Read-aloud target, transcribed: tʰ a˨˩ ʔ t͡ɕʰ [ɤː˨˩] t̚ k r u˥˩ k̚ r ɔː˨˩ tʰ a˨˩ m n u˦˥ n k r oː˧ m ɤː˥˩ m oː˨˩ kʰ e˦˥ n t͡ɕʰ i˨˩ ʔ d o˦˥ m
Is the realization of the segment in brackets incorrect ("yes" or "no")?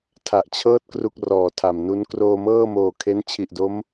yes